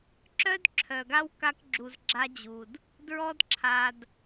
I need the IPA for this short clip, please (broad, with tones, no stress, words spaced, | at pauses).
ǁœ˦dǁʰœ˨ɡa˦w ka˦kɡ͡ǁu˧z ɡ͡ǁa˦d͡ʑu˧d | dɹɔ˦dǁʰa˧d